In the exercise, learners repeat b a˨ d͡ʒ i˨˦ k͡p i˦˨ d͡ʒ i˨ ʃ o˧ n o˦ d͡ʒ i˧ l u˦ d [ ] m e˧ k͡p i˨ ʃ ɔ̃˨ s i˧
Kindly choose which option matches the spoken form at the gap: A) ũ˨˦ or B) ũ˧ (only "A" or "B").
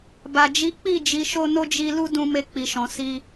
B